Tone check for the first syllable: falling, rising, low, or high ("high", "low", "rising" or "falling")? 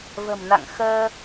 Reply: low